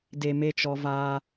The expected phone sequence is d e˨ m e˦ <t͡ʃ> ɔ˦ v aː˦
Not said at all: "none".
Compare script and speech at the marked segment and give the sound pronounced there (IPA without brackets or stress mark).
t͡ʃ